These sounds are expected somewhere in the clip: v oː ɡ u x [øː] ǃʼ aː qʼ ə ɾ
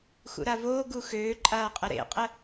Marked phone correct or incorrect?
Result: correct